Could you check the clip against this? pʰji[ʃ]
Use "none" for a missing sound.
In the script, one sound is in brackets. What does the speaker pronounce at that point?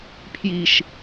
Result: ʃ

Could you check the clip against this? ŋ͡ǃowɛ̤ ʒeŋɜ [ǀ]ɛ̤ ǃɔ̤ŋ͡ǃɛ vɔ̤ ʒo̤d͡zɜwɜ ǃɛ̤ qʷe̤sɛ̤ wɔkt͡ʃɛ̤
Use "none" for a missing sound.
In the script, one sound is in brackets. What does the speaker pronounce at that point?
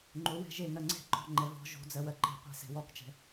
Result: ŋ͡ǀ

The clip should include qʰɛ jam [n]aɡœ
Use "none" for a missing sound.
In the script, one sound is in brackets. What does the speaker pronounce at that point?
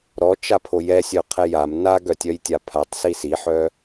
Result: n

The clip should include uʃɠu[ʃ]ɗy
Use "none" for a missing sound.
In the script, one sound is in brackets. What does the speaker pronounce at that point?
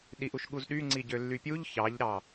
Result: z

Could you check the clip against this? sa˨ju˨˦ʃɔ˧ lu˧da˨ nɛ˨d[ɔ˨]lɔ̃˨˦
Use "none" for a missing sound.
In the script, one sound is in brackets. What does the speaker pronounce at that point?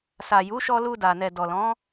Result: ɔ˨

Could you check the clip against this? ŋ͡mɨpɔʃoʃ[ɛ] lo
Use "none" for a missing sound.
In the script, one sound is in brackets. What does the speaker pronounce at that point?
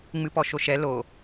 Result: ɛ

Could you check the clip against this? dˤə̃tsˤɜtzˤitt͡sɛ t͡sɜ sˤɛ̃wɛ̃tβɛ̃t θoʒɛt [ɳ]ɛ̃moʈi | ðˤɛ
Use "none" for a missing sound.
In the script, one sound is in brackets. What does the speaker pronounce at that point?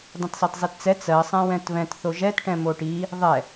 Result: ʈ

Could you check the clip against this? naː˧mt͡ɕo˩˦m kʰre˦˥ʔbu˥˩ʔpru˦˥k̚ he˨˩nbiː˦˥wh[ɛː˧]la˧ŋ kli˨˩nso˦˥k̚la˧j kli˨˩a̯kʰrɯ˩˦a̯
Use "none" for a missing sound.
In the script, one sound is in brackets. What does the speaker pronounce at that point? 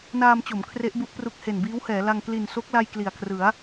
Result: ɛː˩˦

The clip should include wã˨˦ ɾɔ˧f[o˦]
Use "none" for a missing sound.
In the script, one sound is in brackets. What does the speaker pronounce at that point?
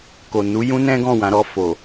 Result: o˨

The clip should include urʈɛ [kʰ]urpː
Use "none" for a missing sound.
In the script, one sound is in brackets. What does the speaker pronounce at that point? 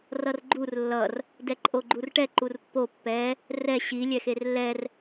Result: ǃ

